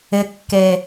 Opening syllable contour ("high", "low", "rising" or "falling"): low